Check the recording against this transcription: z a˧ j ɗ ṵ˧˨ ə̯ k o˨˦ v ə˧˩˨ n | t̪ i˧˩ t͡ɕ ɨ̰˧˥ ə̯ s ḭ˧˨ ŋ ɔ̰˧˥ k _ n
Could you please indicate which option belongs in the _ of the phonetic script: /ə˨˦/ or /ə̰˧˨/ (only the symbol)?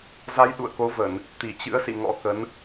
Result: ə˨˦